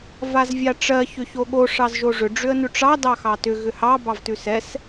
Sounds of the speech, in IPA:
v a z vʲ a ʈ͡ʂ ɜ ç ʏ ç o ɠ o ʂ ɑ z ʒ o ʐ ʏ ɖ͡ʐ ʏ ə̯ n ʉ ʈ͡ʂ ɑ d ɑ x ɑ t ʏ ɣ ʏ h ɑ b ɑ v t ʉ s ɛ s

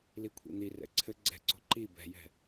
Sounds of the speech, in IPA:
l i kʷʰ ḭ n̪ i r ɛ̰ ǀʰ ɘ ɡ͡ǀ ɛ̤ ǀ o̤ ǃ i b ɛ̤ j ɛ̤

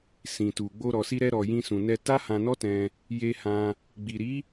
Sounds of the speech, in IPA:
s ĩ˨ t u˨ ɡ͡b o˧ ɾ ɔ˨ s i˧ ɾ ɛ˧ ɾ ɔ˨ j ĩ˧ s ũ˨ n ɛ˧ t a˦ h ã˧ n ɔ˦ t ɛ̃˧ | j e˧ h ã˧ | ɡ͡b i˨ ɾ i˨˦

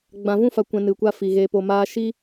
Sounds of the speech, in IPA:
ɡ͡b ã˨ v ũ˦ f a˨ kʷ ɛ̃˧ n ɨ˨ kʷ a˦ f i˨ ɣ e˧ p o˧ m aː˦ ʃ i˦

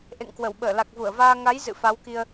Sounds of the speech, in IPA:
ʔ ḛ˧˨ ŋ k w ə˧˩ w ɓ əː˧˩ l a˨˩ k̚ v u˧˩ ə̯ v aː˧ ŋ a˨˦ j z ɨ̰˧˨ f a˨˦ w k i˧ ə̯

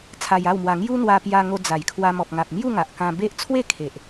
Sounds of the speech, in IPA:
t͡sʰ a˧ j a˥˧ w m w a˧ ŋ j u˦ n̪ w a˧ p j a˧ ŋ o˧ d͡z a˨˩ j kʰ w a˧ m ɔ˨ p̚ ŋ a˨ p̚ m j u˥˧ ŋ a˨ ʔ k ã˧ b e˦ ʔ t͡sʰ w e˥˧ kʰ e˨ ʔ

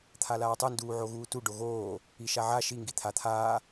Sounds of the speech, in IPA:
t̪ʰ a l aː tˤ ɯ n d uː ʕ o ɣ uː t u ɖ o ɣ oː | i ʃ a ʕ a ʃ i ŋ ɡ i t̪ʰ a t̪ʰ aː

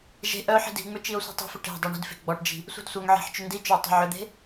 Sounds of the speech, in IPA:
ʒ e̤ ʔ œ ħ i̤ d i̤ ŋ͡m ʏ t͡ʃ i o̯ sʷ e̤ tˤ i̤ f ʏ ʈ e̤ dˤ e ɳ i̤ d f e̤ ɡ͡b ɔ ʈ d͡ʒ i̤ | sʷ i̤ d sʷ œ ŋ ʕ e̤ ħ t͡ʃ ʏ n d i t͡ʃ ʏ o̯ tˤ e̤ ʕ ʏ d̪ e̤

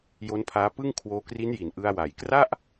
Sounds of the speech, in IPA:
j o˦˥ n pʰ aː˦˥ p ɯ˥˩ ŋ kʰ w oː˧ k r i˦˥ n j i˨˩ n ʔ ɯ˧ a̯ w a˨˩ j k r a˥˩ ʔ

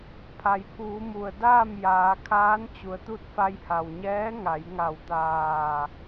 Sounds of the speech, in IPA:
pʰ a˩ j pʰ uː˩˧ m u˩ ə̯ d aː˥˨ m j aː˩˧ kʰ aː˧˥ n t͡ɕ u˩ ə̯ t̪ u˥˨ t̚ f a˧ j h a˩ w ɲ ɛː˧˥ ŋ a˩˧ j ŋ a˧˩ w t̪ aː˧˩

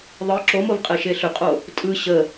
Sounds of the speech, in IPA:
ðˤ ɯ ǁ o m o v qʼ e ʃ e ɬ ʏ qʼ o | tʼ ɯ ɕ ə

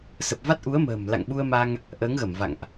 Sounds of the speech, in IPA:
s ə˨˩ p̚ v a˦˥ t̚ ʔ u˨˦ ə̯ m ə̤ː˨˩ m l a̰˧˨ ŋ ɓ u˧ ə̯ m a˧ ŋ | ʔ əː˨˦ ŋ ɣ ə˧˩ m v a̰˧˨ ŋ ʔ

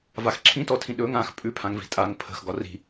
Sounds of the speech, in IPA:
v a x ǁʰ ĩ t ɔ tʰ ĩ ɗ ɵ ŋ ã x pʼ ʉ pʰ ã ŋ v i̤ tʼ a ŋ pʰ ə̤ x ɡ ɒ r i̤

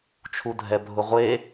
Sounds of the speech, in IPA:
t͡ʃʰ u dʱ ɛ bʱ ʊ ʁʷ e

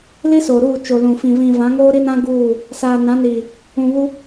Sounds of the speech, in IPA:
l i˦ s oː˨ ɾ uː˦˨ t͡ʃ o˨ l ũ˨ f ĩ˨ v ĩ˨ v ã˨˦ ŋ oː˦ ɾ i˦ n ã˦ ɡ uː˦˨ | s aː˨ n ã˨˦ n iː˨ | ũ˨ β u˦

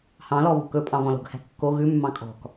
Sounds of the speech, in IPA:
h ɑ̃ l ɔ β o̤ k ɵ pʼ ɑ̃ β ɔ̃ l o̤ ɡ h æ̤ kː o ɣ ʉ mː ɑ̃ kʼ ɔ̤ k

